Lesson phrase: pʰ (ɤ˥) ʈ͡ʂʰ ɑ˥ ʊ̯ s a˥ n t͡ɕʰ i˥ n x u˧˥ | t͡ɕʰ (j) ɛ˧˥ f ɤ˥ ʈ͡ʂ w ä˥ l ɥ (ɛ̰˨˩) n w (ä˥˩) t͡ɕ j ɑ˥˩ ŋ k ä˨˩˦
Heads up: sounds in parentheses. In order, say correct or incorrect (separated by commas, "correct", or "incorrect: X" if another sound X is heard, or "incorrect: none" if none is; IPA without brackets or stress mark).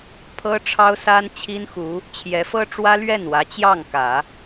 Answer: correct, correct, incorrect: ɛ˥˩, incorrect: ä˧˥